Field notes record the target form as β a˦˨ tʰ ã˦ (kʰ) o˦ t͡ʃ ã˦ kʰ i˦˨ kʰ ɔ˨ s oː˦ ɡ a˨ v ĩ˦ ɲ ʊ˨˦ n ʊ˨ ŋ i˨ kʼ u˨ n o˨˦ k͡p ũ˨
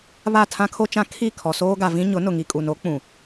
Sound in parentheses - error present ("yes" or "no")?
no